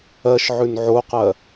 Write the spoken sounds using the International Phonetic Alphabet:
ɜʃʕʉn ʕoqɜ

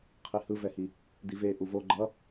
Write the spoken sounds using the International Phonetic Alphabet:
qʰihɯvɛhi | dive ʔuvo ɡ͡ǃʌ

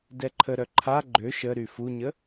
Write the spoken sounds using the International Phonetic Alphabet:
dɛǃʰəɾœ ǃʰa ɡ͡ǃø ʃəɾy fuɲə

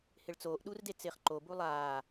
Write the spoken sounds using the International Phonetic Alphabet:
hɪɭt͡soːʔ ɗurdet͡sɪːχǃo bulˠaː

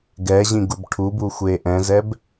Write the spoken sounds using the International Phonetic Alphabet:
ɡɛʑĩɡub ʈʰubuxʷe ʔɛ̃zɛb

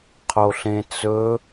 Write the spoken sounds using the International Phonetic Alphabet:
qʰoɬẽt͡sɵ

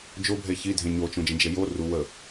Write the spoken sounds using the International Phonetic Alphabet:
d͡ʒobʱe çidʱẽ ɲot͡ʃõd͡ʒə̃d͡ʒe jo ru wə

